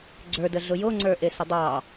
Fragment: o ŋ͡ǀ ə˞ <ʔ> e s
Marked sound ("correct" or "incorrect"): correct